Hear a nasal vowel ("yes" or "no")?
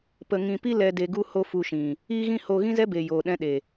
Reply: yes